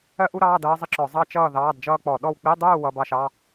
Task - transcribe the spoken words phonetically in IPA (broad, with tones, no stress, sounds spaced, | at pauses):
ɜ˥ ʔ u˥ ɾ ɑː˧˥˧ d ʌː˥ zˤ ɪ˥ ǁ ɔ˧˩˧ zˤ ɑ˥ t͡ʃ ʌː˥˨ ð ɑː˧˥˧ d d͡ʒ ʌː˥ k͡p ɔ˧˩˧ ɗ ɔ˥˨ w k͡p i˧˥˧ dˤ uː˥˨ w ʌ˧˥˧ b ɑ˥˨ ʃ ɑ˧˥˧